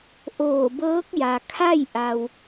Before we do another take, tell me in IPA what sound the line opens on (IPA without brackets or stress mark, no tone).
ʔ